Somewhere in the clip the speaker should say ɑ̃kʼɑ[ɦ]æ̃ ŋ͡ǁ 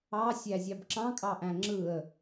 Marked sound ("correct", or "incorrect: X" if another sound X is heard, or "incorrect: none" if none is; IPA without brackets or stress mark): incorrect: ʔ